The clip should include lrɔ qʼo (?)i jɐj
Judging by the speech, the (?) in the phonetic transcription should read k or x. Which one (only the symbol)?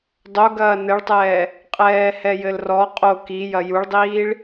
k